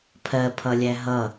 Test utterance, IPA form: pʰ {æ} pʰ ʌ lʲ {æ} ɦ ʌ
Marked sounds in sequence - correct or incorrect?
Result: incorrect, correct

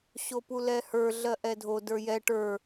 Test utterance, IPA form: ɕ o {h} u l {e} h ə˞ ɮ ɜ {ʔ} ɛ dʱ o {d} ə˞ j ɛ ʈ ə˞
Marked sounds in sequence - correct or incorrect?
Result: incorrect, incorrect, correct, correct

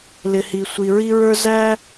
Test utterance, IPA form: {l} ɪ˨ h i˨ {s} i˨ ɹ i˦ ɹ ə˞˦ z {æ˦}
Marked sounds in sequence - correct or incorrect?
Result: correct, incorrect, correct

